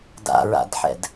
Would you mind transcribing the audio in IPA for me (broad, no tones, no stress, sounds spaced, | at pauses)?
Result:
d a̰ ɹ a̰ d ħ ɛ̰ d